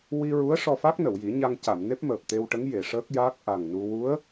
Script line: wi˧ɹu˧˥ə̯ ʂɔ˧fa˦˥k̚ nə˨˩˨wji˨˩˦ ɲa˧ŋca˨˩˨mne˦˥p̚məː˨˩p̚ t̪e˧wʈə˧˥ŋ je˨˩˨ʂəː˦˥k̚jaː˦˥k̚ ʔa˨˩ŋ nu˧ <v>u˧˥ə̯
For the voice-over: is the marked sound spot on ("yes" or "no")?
no